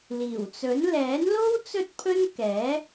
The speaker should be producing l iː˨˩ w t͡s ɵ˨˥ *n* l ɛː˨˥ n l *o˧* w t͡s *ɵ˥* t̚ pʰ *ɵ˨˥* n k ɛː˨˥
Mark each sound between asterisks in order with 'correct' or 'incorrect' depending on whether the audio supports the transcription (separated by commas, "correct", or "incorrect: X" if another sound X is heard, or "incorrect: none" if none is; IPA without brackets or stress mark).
correct, incorrect: o˥, correct, incorrect: ɵ˥